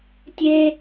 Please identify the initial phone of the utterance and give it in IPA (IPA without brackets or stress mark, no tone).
tʲ